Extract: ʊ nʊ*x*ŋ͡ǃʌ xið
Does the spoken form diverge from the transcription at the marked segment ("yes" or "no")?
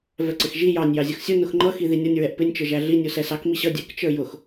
no